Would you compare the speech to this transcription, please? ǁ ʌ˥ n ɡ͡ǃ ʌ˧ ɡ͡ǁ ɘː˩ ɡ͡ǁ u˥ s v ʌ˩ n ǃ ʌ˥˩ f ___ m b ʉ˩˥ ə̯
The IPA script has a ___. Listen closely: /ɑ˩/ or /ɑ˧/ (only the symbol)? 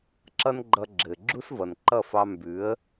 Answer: ɑ˧